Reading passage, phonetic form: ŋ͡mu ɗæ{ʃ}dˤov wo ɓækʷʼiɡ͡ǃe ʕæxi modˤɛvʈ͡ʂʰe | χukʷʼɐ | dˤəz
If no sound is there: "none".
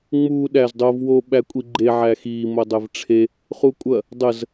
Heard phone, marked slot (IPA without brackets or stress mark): z